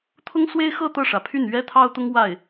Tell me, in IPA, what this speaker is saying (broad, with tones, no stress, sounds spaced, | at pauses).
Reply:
t̪ʰ ʊ˥ ŋ s w e˥ ɪ̯ x ɤ˥˧ t̪ ɤ˥˩ ʂ ä˩ pʰ y˥˩ n ɥ ɛ˥ t̪ʰ ɑ˥ ʊ̯ t̪ ʊ˥ ŋ w a˥˩ ɪ̯